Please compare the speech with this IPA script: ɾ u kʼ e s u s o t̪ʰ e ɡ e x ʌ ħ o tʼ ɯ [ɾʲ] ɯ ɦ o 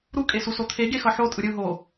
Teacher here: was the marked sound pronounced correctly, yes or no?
yes